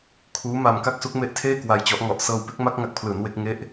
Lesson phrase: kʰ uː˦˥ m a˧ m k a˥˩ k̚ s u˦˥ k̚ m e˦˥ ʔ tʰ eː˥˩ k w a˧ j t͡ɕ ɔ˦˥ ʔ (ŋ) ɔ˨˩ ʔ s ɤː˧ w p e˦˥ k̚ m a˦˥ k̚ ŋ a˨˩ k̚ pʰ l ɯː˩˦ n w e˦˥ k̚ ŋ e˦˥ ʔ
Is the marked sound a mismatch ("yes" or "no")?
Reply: no